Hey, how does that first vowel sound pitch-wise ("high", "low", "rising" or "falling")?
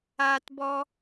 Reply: high